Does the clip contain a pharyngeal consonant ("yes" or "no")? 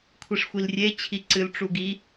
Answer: no